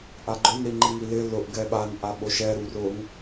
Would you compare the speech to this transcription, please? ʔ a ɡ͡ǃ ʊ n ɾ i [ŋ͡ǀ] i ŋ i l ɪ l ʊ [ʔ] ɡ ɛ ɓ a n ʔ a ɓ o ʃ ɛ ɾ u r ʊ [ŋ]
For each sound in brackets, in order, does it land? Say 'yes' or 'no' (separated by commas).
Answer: no, yes, yes